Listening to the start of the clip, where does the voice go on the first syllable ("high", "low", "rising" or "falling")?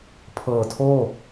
low